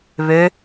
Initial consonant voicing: voiced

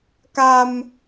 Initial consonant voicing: voiceless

